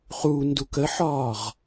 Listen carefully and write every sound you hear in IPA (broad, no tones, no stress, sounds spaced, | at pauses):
χ u n d u k ə ħ ɒː ʁ